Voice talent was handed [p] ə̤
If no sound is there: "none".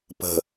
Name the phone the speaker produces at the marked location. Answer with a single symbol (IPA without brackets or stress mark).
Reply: p